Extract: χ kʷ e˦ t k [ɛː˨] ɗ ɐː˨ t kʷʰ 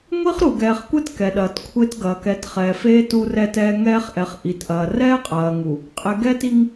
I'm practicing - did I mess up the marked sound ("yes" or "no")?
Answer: yes